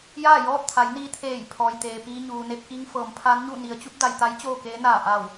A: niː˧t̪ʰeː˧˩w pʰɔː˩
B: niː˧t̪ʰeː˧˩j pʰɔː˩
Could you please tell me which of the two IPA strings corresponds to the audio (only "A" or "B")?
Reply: B